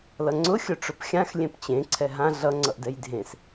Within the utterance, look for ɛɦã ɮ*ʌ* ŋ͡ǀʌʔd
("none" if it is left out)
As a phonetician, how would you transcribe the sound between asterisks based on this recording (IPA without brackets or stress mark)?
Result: ʌ